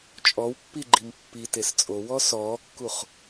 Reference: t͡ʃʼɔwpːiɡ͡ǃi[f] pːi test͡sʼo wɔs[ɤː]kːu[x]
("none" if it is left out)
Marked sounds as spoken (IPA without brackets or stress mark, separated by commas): m, ɔː, χ